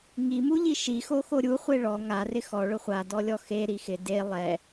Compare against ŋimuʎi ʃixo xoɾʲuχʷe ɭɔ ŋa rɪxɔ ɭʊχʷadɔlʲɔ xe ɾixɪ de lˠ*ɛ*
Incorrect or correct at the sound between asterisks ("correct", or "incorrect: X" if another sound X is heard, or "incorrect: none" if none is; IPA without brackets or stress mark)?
correct